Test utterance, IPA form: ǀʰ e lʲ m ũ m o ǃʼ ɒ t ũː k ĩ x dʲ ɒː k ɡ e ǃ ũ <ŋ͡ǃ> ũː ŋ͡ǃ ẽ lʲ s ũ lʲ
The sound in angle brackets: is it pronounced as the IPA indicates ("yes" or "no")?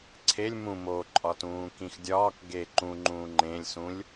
yes